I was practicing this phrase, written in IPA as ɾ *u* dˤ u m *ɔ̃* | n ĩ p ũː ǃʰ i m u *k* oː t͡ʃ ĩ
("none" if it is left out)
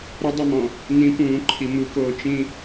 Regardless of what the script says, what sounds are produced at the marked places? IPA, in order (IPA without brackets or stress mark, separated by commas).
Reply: ʊ, ɔ̃, k